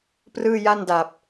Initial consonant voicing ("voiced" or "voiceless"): voiceless